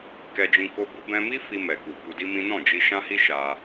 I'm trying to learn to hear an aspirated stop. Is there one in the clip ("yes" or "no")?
no